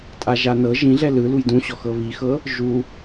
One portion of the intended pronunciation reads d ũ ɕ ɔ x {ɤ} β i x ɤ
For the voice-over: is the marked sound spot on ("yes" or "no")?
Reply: yes